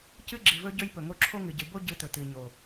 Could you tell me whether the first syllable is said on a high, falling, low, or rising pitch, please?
high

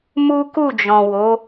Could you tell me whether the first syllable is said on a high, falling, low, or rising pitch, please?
high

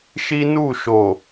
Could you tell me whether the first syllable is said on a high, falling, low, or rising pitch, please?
high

